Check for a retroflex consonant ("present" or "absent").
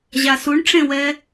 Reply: present